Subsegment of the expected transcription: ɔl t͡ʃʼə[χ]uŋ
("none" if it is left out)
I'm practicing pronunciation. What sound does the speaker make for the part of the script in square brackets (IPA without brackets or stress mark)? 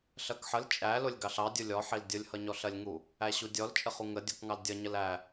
χ